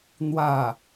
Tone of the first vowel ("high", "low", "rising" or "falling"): falling